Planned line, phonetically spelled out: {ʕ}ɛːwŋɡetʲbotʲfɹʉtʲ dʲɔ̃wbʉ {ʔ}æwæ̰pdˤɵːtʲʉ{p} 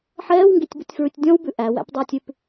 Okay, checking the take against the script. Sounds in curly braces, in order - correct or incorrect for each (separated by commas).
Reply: incorrect, correct, correct